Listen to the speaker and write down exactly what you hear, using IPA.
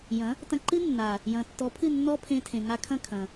j ɐ̃˨˦ | t ɐ̃˧ ǃ ɨ˦ nː a˨ | j ɐ̃˨ tː ɔ˨˦ pʰ ɨ˦˨ nː ɔ˦ pʰ ẽ˧ tʰ ẽ˨ ŋ a˧ kʰ ɐ̃˦˨ kʰ ɐ̃˨

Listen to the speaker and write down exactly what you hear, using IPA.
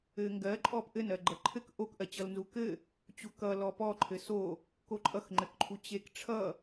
ɘ ŋ ɡ ɜ ǃʼ ɔ p ʔ ɘ n ɜ ɡ͡ǃ ʌ ǃʰ ɘ k ʔ o k ʔ ɜ t͡ɕ ʌ l n z u k ɘ | t͡ɕ u k ʌ l ɔ p ɔ ǃʰ ɘ s o | k o ǃʼ ʌ x ŋ͡ǃ ɘ k ǃʰ u t͡ɕ e k ʈ͡ʂʰ ʌ

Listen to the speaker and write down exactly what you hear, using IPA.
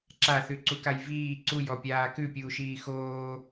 ǁ a θ ʉ ǀ u k a j v iː ǀ u j ɔ pʲ aː k ʉ pʲ uː ʃ iː x oː

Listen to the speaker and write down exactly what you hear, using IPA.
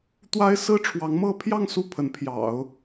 t̪ w a˥ ɪ̯ s ɹ̩˥ ʈ͡ʂʰ w ɑ˧˥ ŋ m ɤ˥ pʰ j ɑ˥˧ ŋ s u˥˩ pʰ ə˧˥ n pʰ j ɑ̰˨˩˦ ʊ̯

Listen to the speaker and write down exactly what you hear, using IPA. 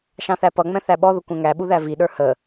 ʃ ɑ̃ θ æ p ʌ ŋ͡m ɛ̃ θ æ ɓ ɔ ð ə kʷ ɛ̃ ŋ æ ɓ u ð æ v i ɗ ə˞ h ə

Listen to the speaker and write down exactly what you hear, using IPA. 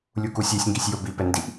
lʲ u k u sʲ e sʲ ŋ ɡ i sʲ j o b i p ɛ n d i ʔ

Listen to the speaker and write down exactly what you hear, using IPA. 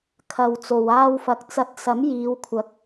kʰ ɐ˨ w t͡s o˨ w aː˧ w f ɐ˨ k̚ t͡s ɐ˨˥ t̚ s ɐ˨˥ m j iː˨˧ w kʷʰ ɐ˨˥ k̚

